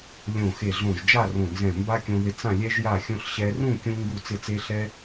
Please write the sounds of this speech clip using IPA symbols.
lʲõ˧˩xe˧˩ɮõ˧˩ʒ d͡ʒa˥˧rõ˧˩nzɛ̃˧˩ mba˧ kʲõ˧ðɪ˧ t͡sã˧˩ lʲɛ˧ʒja˧˩xʲõ˧ɬ ɕɛ˧rũ˥˧ kʲũ˧ ŋɡu˧˩t͡sɪ˧˩t͡se˧ɬɛ˧

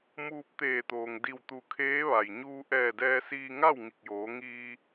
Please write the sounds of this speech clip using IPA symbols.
muː˧p̚t̪eː˧˩t̪oː˩ŋ di˧˩wt̪u˧˩kʰeː˧˥ ʋa˩j ɲuː˧ ʔɛː˧˩dɛː˧siː˧ ŋa˥˨w ŋi˧˩k̚joː˩˧ ŋiː˧

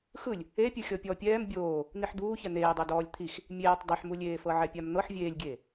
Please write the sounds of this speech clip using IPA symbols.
xɯlʲ | epʲɯ xʲɔpʲɔ pʲɛːm bʲoː | n̪iħd̪uː çɛn̪eːdˤo dɔːlʲt̪ʰix | mʲeːtˤ dˤɯħmulʲeːfɤ ʕɛpʲamn̪ɤħ vʲeːlʲɡʲeː

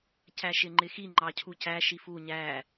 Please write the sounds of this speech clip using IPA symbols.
cæʃɪŋ͡ǃɪxi ŋ͡ǃɑcʰucæ ʃifu ɲæ

